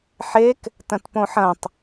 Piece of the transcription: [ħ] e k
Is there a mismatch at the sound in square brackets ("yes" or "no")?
no